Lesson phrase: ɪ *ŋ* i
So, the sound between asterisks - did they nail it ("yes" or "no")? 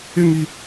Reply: yes